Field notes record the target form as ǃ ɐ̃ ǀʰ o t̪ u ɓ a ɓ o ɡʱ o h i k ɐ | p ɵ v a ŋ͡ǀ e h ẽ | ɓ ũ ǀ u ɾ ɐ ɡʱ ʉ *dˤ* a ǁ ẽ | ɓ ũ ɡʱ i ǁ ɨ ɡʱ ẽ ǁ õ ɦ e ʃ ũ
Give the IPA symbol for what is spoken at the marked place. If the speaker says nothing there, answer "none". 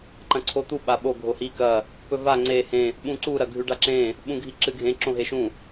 ɖ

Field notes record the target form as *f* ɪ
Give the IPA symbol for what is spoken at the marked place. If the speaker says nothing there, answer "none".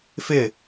f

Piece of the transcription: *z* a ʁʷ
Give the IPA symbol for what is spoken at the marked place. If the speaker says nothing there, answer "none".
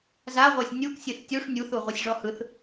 z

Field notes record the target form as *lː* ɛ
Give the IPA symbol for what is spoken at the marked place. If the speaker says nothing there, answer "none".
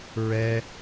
ɹ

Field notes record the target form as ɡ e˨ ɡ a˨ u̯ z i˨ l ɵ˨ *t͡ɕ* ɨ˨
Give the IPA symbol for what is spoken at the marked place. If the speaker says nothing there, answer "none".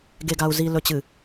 t͡ɕ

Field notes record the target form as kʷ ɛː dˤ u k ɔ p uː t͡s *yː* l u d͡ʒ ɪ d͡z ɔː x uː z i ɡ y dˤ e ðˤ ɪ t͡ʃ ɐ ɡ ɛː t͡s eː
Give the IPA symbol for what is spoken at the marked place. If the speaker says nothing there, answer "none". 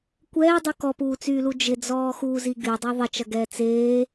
yː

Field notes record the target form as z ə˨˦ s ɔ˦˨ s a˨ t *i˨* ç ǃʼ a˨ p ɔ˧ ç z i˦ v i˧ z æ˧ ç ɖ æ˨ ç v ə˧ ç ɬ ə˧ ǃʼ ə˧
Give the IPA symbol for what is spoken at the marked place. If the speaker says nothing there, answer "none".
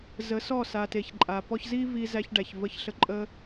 e˨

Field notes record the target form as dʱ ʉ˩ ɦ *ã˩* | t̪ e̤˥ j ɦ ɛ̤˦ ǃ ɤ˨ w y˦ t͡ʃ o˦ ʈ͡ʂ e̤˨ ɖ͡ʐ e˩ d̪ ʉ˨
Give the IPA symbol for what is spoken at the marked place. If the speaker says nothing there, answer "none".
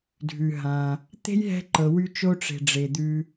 ã˩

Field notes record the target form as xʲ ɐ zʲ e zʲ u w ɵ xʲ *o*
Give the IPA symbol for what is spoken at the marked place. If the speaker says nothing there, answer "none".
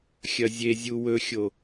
o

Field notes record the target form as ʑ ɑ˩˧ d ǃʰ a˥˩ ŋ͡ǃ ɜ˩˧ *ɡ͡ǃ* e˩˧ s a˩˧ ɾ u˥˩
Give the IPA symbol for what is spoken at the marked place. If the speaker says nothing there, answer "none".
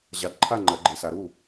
ɡ͡ǃ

